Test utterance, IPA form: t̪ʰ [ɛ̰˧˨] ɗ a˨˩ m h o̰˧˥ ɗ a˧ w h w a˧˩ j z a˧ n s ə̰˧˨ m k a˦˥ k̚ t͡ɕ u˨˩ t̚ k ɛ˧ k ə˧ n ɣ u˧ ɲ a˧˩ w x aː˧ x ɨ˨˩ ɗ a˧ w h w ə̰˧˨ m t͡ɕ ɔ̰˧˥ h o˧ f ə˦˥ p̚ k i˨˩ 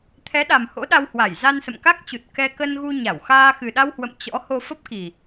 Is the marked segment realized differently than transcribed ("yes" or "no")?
yes